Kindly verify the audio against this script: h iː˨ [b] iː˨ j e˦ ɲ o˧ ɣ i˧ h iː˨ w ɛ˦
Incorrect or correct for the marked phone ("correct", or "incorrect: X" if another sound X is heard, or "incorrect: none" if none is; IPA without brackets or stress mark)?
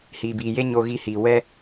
correct